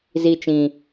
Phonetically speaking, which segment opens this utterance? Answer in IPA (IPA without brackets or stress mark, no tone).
z